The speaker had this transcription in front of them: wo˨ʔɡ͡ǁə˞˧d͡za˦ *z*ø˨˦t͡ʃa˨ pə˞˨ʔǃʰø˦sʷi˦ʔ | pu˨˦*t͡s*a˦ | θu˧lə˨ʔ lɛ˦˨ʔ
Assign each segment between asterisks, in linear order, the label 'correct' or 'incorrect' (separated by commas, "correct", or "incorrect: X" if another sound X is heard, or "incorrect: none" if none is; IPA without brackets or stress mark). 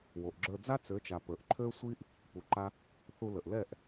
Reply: incorrect: t͡s, incorrect: ǃ